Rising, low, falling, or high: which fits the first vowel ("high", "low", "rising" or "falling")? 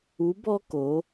rising